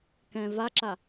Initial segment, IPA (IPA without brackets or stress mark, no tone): k